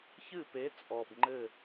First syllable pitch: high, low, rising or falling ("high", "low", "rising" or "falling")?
falling